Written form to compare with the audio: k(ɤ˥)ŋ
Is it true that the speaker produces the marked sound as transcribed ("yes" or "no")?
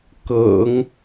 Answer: no